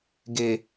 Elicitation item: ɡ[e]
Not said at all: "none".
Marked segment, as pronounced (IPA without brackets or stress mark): e